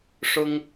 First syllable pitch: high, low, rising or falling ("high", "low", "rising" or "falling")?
high